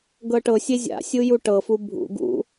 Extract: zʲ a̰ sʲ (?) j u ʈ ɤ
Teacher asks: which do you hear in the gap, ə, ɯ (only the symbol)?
ɯ